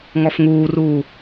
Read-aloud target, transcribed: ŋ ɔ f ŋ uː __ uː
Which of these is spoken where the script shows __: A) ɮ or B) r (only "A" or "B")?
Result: B